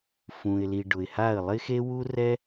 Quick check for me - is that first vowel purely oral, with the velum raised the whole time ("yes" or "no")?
no